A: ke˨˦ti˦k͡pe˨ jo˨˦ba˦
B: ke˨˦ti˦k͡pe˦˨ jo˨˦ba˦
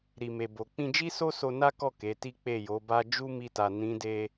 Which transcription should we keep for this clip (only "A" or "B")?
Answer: B